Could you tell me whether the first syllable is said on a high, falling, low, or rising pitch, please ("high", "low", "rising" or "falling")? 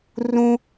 high